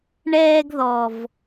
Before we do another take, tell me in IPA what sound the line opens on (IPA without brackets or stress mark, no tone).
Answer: ɳ